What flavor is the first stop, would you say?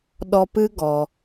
implosive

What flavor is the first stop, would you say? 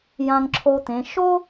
click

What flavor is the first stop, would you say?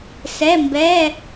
plain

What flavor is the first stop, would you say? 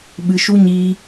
implosive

